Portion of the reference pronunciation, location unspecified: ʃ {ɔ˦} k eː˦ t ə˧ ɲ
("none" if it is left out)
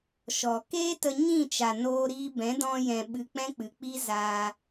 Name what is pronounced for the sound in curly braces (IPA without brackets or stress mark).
ɔ˨